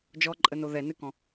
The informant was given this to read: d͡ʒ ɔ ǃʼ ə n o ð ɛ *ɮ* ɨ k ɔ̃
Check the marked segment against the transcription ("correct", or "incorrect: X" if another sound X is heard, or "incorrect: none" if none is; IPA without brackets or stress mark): incorrect: n